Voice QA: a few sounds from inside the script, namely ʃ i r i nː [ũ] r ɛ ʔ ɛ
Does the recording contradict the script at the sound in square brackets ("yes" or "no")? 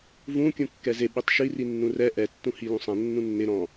no